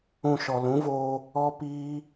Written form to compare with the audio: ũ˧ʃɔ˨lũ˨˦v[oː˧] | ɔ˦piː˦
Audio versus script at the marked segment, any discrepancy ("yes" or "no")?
no